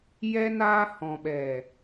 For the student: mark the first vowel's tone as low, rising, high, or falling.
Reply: high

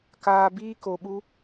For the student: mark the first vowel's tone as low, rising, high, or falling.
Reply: low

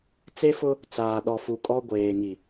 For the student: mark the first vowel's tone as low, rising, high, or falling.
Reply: high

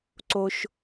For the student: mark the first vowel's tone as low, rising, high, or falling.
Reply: high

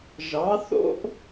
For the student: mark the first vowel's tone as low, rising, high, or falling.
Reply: rising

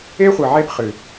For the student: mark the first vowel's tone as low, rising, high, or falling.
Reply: high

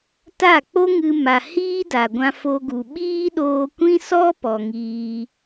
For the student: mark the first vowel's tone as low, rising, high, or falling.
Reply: falling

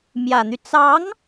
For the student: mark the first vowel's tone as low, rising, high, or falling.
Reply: low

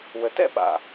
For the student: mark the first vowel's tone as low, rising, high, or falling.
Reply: low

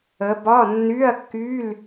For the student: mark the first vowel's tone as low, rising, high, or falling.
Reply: rising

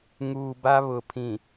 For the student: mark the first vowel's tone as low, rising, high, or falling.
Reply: low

